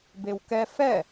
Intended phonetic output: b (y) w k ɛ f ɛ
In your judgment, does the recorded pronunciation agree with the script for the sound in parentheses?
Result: no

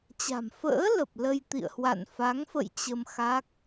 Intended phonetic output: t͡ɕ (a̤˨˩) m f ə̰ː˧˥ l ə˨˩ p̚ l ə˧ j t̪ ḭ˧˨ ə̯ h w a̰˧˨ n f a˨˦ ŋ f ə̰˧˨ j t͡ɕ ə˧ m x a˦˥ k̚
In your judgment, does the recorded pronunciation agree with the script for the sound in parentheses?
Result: yes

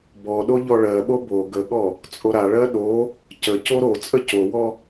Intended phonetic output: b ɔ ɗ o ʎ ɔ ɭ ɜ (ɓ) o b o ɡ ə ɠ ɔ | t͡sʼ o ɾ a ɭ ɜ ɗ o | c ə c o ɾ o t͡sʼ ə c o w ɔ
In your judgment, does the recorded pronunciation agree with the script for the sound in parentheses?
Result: yes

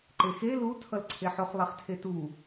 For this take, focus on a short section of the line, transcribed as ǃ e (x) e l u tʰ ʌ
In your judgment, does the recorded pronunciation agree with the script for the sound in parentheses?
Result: yes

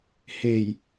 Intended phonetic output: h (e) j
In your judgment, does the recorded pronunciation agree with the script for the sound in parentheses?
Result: yes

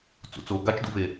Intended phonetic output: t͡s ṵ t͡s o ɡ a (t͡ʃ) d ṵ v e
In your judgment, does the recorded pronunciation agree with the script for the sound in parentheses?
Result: yes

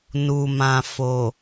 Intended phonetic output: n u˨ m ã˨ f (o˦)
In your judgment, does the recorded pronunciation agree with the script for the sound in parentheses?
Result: no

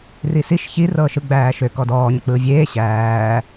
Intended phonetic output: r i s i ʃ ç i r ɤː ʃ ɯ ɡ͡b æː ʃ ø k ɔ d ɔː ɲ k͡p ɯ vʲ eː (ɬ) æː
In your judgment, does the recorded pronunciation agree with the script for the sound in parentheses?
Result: no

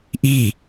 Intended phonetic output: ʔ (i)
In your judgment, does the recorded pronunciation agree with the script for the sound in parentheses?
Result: yes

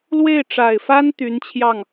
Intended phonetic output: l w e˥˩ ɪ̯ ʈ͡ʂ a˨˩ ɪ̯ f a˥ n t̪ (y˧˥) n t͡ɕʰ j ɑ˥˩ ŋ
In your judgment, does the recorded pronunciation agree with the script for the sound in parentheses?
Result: yes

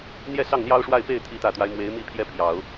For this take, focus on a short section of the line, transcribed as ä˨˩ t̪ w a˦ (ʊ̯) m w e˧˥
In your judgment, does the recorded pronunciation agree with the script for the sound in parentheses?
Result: no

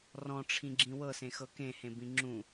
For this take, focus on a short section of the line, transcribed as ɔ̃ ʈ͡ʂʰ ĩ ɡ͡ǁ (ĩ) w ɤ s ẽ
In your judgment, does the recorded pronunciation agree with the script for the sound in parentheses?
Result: yes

